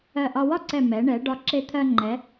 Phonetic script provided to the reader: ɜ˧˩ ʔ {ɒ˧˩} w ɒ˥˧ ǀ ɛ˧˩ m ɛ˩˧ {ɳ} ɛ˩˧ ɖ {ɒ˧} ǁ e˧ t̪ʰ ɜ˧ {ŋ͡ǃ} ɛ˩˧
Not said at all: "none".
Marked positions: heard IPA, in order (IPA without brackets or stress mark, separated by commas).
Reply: ɒ˧, ɳ, ɒ˧, ŋ͡ǃ